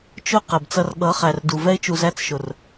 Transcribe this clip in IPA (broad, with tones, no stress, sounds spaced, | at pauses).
t͡ʃ ʊ˦ q ɛ˨ b t͡s ʌ˦ r ɠ ʌ˨˦ χ æ˨ r d u˨ v ɛ˦ ɪ̯ t͡ʃ u˨ z æ˦ t͡s ʃ ʊ˨ r